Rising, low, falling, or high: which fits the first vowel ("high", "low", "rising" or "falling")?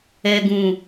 low